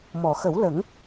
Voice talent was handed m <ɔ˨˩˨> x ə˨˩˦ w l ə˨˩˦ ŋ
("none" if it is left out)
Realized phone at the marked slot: ɔ˨˩˨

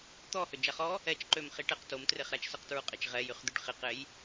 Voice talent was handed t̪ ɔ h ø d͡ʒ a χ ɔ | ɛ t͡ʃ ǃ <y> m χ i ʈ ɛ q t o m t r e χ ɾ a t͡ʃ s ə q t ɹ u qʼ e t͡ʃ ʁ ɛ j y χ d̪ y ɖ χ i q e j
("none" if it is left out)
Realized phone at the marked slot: ø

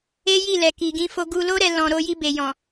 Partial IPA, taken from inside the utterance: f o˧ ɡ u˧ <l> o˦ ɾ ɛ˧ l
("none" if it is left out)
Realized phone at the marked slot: l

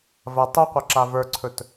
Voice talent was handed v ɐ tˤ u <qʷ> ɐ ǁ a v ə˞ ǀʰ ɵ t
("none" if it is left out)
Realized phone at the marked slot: qʷ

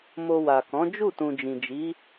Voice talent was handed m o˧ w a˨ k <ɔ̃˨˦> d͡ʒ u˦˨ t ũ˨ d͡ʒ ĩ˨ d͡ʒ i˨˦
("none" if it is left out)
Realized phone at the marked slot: ɔ̃˨˦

